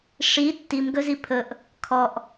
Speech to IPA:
ʂ i tː i m ɡ ɵ z i pʰ ɵ ʔ | kʰ ɔ ʔ

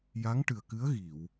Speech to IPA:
j a˧˥ ŋ ʈ ɨ˨˩ ə̯ k ɨ˧˥ ə̯ ɣ i˨˩˨ w

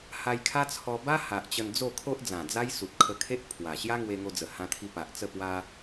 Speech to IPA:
h a˧ j kʰ a˦ t͡sʰ ɔ˧ b a˦ h a˨ ʔ t͡ɕ ə˧ n d͡z o˥˧ kʰ o˦ ʔ d͡z ã˨˩ d͡z a˦ j s u˨ t̚ kʰ ə˧ kʰ e˦ ʔ pʰ w a˨˩ ɕ j a˦ ŋ w e˧ ŋ o˧ d͡z ə˨˩ h ã˧ t̪ʰ i˧ p a˨ ʔ t͡s ə˥˧ p w a˦

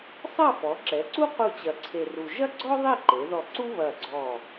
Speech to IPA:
sˤ ɐ˥˧ f ɔ˩˧ ǁ ɛ˩˧ ǀ u˥ q u˥˧ t͡ɕ ɐ˧˩ ǀʰ e˧ r u˧ ʒ ɐ˥ ɡ͡ǀ ɔ˥ ðˤ i˥˧ ǃ e˩˧ ð ɔ˧˩ ǀ u˥ β ɐ˧˩ ɡ͡ǀ ɔ˧˩

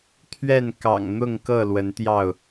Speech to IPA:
t̪ʰ ɥ ɛ˥˨ n k ɑ̰˨˩ ŋ n̪ ʊ˥˨ ŋ k ɤ˥˨ l w ə˨˦ n t̪ j ɑ˥˨ ʊ̯

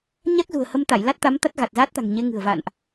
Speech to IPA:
ɲ a˦˥ k̚ z ṳ˨˩ ə̯ h ə˧ m t̪ a˧˩ j l a˦˥ t̚ t̪ a˨˦ m t̪ a˦˥ t̚ ɣ a˨˩ t̚ z a˦˥ t̚ t̪ a̤˨˩ ŋ ɲ e˨˦ ŋ ɨ̤˨˩ ə̯ v a̰˧˨ n ʔ

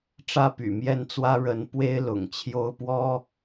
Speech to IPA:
ʈ͡ʂ ä˥ p y̰˨˩ m j ɛ˥˩ n t͡s w ä˥ ɻ ə˧˥ n p w e˥ ɪ̯ l ʊ̰˨˩ ŋ t͡ɕʰ j o˥ ʊ̯ p w ɔ˥

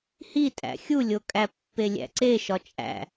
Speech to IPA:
h i tʼ æ̰ xʲ u lʲ o kʼ æ pː e lʲ æ̰ ǀ e ʃ ɒ t͡ʃʼ æ̰

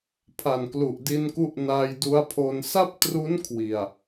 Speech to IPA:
pʰ a˨˩ n k l u˨˩ ʔ d i˧ n k u˦˥ ʔ n a˧ j d u˦˥ a̯ pʰ o˧ n s a˥˩ p̚ t r u˦˥ n kʰ w i˨˩ a̯

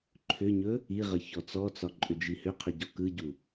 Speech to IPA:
ǃʰ ʏ ɲ ɵ | i ʁ ə ç ɔ t͡s ɔ t͡s ɒ ǃʼ ʏ d͡ʒ i h ʏ qʰ ɵ ɟ ɔ k ɯ ɟ u

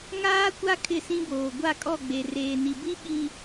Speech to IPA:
ŋ aː˦ kʷ a˦ kʰ ɪ˦˨ s ĩ˦ b oː˨ ɡʷ a˦˨ kʼ ɔ˦˨ ɡ͡b e˨ r eː˨ n i˨ b i˦ ɓ i˨

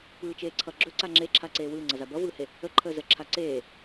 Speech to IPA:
p ɯː t͡ʃ eː ǀʰ ʌ ɡ͡ǁ ɵ ǀ a ŋ͡ǁ e ǁʰ a ǀ eː w ɯː ŋ͡ǀ ʌ z a b ʌ v ɯː h e | ə ǃʰ əː z ə ǁʰ a ǀ eː

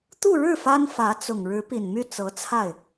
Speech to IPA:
t̪ u˥˧ ɻ ɻ̩˥˩ f a˥ n f ä˧˥ t͡s ʊ˨˩ ŋ ɻ ɻ̩˧˥ p i˨˩ n m y˥˩ t͡s ɤ˧˥ t͡sʰ a˥˩ ɪ̯

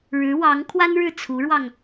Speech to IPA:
ɻ ɻ̩˧˥ w ɑ˧˥ ŋ kʰ w a˥ n ɻ ɻ̩˥˩ t͡sʰ u˧˥ ɻ w ɑ˧ ŋ

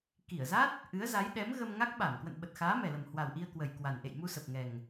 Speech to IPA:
k i˧˩ ə̯ z a˦˥ t̚ | ʔ ɨ˨˦ ə̯ z a˨˦ j ɗ ɛ˨˦ m ɣ ə˧ m ŋ a˦˥ k̚ ɓ a˧˩ m k w ə̰˧˨ n ɓ ə˨˩ t̚ x aː˨˦ m ɛ˨˩ l ə˨˩ m h w a˨˩ w ʔ i˧ ə̯ k w ə˨˩ j k w a˨˩ n ʔ ḛ˧˨ j m u˧ s ə˨˩ p̚ ŋ ɛ˨˩ ŋ

